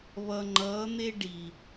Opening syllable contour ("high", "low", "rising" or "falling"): low